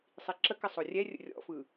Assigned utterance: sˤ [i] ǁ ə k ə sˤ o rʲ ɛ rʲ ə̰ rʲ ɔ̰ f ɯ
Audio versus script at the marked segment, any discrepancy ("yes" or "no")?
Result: no